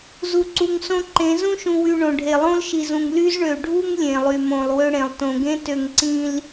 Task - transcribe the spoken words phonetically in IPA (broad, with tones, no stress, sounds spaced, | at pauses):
z u˨ ǀ u˨ ŋ s õ˦ ǃ ẽ˨˦ z ũ˦ ʃ ũ˨ w y˨ ɳ õ˨ ɖʱ e˨ lˠ õ˦ l ʃ i˨ z ũ˨ ŋ l y˦ z ɳ ø˨ ɖʱ u˦ ŋ lʲ ẽ˨ lˠ y˨ m õ˨ lˠ w ø˦ ɽ ẽ˨ lˠ t õ˨ ɡ ẽ˦ t ø˨ ŋ ǀ ĩ˨ l